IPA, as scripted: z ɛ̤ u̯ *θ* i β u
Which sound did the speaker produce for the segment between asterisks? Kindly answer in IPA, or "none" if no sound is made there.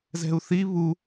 θ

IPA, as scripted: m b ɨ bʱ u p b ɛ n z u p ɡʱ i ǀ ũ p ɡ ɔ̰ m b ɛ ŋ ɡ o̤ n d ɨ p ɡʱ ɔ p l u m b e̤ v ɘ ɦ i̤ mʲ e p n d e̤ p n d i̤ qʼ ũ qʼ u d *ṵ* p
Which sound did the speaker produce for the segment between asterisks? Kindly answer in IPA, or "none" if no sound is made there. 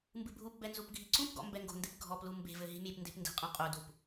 u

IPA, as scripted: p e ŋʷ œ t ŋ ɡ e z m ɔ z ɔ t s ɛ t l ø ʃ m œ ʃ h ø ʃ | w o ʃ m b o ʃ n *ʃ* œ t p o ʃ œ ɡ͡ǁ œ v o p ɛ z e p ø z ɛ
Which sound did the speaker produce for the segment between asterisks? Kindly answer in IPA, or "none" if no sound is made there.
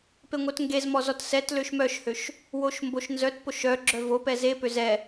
z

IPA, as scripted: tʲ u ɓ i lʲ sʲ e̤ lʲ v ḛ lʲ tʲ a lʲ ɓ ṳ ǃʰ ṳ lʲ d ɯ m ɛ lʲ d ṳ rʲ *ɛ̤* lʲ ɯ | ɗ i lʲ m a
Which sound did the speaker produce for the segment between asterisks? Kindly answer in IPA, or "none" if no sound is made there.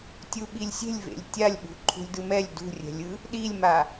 ɛ̤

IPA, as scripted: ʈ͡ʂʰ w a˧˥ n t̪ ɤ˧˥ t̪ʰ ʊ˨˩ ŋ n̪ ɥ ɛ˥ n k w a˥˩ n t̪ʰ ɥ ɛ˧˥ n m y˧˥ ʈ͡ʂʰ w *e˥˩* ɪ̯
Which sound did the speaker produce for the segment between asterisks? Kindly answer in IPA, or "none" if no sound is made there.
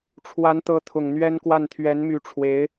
e˧˥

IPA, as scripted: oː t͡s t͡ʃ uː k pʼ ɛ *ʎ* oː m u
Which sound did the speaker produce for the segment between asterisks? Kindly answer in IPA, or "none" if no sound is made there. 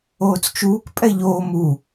ʎ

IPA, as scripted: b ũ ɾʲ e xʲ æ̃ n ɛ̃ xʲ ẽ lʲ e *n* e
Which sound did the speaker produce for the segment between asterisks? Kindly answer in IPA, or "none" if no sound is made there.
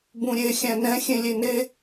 n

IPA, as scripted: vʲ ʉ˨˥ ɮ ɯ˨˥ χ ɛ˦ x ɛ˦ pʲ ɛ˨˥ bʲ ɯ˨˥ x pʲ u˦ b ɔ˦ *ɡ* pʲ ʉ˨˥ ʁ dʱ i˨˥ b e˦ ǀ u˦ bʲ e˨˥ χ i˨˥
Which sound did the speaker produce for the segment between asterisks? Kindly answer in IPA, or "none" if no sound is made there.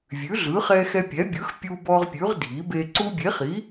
ʁ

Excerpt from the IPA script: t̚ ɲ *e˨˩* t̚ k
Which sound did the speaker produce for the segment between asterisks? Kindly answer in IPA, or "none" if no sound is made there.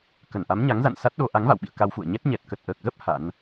ɛ˨˩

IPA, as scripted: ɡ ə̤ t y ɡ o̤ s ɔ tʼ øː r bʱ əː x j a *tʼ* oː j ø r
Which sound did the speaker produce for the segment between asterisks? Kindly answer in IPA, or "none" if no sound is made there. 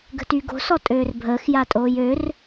tʼ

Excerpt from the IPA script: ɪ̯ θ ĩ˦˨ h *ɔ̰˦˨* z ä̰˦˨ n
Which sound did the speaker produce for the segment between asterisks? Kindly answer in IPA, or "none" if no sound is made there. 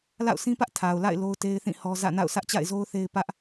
ɔ˦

